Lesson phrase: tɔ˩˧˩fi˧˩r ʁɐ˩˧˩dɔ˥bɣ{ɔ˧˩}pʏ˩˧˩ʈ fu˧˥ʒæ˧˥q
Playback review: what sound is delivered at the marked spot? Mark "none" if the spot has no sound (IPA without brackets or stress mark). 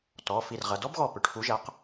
ɔ˧˩